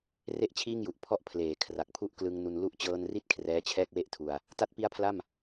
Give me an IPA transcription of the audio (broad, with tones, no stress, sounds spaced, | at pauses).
r e˥˩ ʔ t͡ɕʰ iː˥˩ ŋ j u˨˩ ʔ pʰ ɔ˦˥ ʔ pʰ l eː˩˦ kʰ r a˨˩ k̚ pʰ u˥˩ ʔ k l ɯ˧ ŋ n u˧ n l u˦˥ ʔ t͡ɕ ɤː˧ n r i˥˩ t̚ kʰ r ɛː˦˥ t͡ɕʰ ɛː˥˩ k̚ w e˥˩ ʔ tʰ u˧ a̯ | t a˦˥ t̚ p i˦˥ a̯ pʰ l a˥˩ m